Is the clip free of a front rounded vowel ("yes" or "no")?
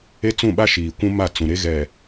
yes